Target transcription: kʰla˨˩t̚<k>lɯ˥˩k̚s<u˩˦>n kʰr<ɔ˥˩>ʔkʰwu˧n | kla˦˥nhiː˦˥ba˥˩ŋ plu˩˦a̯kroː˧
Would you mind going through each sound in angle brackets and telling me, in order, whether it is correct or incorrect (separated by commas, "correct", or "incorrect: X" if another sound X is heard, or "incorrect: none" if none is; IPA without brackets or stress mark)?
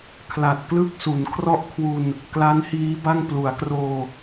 correct, correct, correct